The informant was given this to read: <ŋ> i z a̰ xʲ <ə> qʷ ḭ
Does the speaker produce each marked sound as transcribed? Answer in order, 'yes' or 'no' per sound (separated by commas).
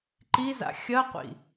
no, no